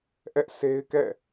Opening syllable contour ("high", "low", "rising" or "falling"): high